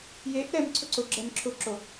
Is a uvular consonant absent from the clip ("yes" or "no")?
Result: yes